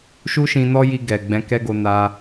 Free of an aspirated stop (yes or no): yes